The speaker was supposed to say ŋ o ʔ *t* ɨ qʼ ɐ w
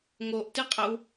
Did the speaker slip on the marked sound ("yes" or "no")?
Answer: no